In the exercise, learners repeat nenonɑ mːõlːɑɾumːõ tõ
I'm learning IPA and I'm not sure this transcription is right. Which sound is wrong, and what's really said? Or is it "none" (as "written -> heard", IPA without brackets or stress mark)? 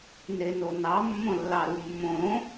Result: t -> ɾ